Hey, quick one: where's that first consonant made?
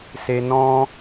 tongue tip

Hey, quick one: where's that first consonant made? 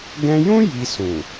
velum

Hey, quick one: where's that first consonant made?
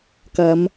velum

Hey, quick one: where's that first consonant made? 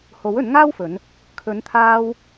throat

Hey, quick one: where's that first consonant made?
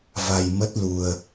lips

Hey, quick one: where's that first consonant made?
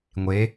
velum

